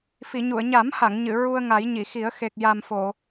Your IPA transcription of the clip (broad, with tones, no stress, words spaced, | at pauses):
fi˨˩˨ɲu˨˩˨ə̯ ɲa˨˩˦mha˨˩˨ŋ ɲɨ˨˩˨ ɹu˧ə̯ŋa˨˩˦j ɲi˨˩˨xi˨˩˦ə̯ xe˨˩k̚ja˨˩m fo˨˩˨